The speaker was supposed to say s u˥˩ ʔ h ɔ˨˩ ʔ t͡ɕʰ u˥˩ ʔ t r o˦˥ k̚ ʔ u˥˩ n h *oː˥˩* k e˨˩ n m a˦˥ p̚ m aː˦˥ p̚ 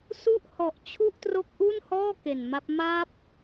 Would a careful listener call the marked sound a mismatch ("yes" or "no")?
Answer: yes